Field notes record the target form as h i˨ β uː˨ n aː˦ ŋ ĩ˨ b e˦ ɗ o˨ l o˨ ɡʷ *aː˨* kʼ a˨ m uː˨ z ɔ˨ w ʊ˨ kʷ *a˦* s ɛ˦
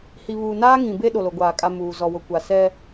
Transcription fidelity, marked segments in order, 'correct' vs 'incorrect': correct, incorrect: a˨

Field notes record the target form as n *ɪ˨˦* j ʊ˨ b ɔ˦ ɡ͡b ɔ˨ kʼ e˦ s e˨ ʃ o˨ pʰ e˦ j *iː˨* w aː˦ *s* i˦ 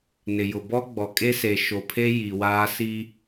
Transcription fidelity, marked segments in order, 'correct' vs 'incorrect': incorrect: ɪ˨, incorrect: i˨, correct

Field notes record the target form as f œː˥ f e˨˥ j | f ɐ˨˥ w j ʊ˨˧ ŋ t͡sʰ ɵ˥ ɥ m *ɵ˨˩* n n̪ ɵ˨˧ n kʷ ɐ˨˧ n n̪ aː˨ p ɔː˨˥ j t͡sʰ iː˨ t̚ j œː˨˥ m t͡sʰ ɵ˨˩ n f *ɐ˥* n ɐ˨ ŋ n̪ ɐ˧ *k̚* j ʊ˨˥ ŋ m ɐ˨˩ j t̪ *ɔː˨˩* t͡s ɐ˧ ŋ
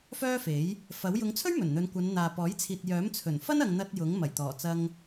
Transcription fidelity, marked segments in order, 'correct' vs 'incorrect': correct, correct, incorrect: t̚, correct

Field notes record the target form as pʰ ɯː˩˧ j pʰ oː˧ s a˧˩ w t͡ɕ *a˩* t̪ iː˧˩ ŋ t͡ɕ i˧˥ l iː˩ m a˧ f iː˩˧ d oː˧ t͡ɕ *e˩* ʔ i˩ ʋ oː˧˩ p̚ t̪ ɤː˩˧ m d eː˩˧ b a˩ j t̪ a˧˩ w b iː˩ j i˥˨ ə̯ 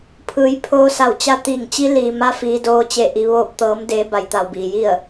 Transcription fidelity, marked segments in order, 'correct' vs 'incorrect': incorrect: a˧˥, incorrect: e˧˩

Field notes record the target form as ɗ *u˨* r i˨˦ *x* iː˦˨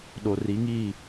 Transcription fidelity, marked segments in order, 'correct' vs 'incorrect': incorrect: o˨, incorrect: ŋ

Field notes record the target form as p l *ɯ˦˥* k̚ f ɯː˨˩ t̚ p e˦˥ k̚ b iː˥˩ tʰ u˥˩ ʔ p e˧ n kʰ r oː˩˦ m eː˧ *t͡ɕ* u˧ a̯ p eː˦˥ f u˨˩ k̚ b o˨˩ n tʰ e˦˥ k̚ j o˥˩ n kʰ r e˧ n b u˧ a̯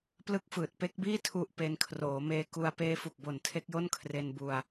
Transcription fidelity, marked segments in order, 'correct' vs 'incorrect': correct, incorrect: k

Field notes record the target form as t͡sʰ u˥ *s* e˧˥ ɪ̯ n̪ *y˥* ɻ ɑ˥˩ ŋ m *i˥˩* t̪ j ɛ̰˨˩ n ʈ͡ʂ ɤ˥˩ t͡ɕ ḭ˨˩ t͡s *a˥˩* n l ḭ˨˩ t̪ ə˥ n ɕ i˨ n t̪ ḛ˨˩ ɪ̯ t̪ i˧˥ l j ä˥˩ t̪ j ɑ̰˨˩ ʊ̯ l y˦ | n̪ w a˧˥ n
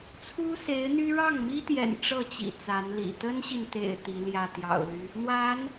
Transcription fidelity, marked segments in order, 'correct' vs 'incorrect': correct, correct, incorrect: i˥, incorrect: a˧˥

